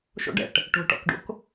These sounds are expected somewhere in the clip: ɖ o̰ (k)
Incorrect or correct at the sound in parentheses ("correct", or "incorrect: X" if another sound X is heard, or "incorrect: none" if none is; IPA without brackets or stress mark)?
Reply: correct